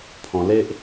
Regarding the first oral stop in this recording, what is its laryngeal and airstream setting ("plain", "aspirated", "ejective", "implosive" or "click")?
aspirated